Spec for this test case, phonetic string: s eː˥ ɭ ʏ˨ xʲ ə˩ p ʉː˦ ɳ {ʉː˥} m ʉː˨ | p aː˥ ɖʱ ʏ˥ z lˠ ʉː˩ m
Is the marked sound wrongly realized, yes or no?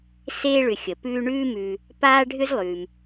no